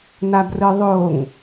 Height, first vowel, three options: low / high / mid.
low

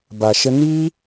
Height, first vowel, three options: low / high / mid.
low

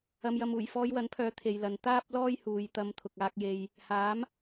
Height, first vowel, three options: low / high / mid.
low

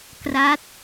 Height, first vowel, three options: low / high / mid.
low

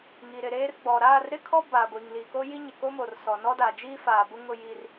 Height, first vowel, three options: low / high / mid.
high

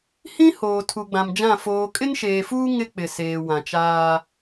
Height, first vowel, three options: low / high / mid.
high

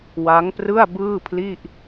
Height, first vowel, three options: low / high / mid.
low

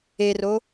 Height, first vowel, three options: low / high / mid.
mid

